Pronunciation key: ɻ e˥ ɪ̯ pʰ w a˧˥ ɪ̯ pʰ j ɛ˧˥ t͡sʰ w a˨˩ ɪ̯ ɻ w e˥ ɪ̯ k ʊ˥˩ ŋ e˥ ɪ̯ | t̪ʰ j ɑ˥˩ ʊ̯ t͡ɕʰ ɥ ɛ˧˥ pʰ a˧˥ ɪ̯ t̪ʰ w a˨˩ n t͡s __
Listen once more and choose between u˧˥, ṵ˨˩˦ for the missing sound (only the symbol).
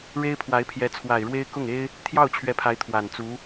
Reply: u˧˥